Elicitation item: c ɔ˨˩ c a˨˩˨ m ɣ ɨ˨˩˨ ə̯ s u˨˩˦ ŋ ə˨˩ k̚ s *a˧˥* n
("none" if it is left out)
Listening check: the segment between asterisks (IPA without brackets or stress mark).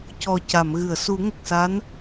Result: a˧˥